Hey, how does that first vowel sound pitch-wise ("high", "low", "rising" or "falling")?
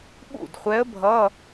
falling